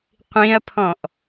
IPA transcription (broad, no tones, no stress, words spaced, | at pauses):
qʷĩɐ̯pʰɔ̃ʔ